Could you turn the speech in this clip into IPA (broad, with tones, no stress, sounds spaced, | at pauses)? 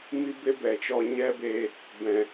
m i˦ b e˦ b ɛ˨ t͡ʃ ɔ˧ ɲ ɛ˦ b e˧ | b ɛ̃˨